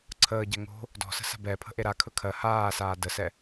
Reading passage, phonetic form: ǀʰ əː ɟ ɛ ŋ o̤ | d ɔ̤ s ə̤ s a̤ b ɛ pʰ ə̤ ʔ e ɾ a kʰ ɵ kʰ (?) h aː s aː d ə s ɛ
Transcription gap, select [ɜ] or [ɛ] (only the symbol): ɜ